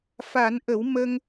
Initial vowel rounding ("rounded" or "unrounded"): unrounded